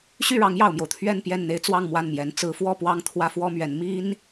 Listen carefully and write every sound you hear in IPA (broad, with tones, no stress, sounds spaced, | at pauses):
ɕ y˥˩ ɻ ɑ˧˥ ŋ j ɑ˨˩ ʊ̯ m j o˦ ʊ̯ t̪ʰ ɥ ɛ˥˧ n p j ɛ˥˩ n n̪ e˥ ɪ̯ t͡s w ɑ˥˧ ŋ m w a˥˩ n m j ɛ˧˥ n t͡s ɹ̩˧˥ f w ɔ˥˧ p w ɑ˥˩ ŋ t̪ʰ w ä˥ f w ɔ˥ m ɥ ɛ˧˥ n m i˥ n